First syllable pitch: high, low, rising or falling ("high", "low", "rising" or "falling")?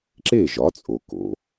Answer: falling